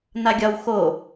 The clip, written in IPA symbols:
n a ɡʲ ɒ w x o

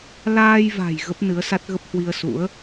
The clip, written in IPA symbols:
l aː˧ j v a̤˨˩ j ɣ ə˦˥ p̚ n ɨ˨˦ ə̯ s a˦˥ t̚ ɣ ə˦˥ p̚ h w i˧ ə̯ s ṵ˧˥ ə̯

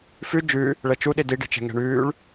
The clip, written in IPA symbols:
f ʉ d͡ʒ ʉ | ɭ ɛ t͡ʃ u ɗ i d i ɖ i̤ t͡ʃ ɛ̤ ŋ ɛ̤ ɳ ʉː ɭ

